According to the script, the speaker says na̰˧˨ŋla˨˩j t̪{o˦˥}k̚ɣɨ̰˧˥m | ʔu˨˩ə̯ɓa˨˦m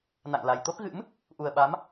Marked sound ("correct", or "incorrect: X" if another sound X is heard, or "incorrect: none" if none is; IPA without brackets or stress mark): correct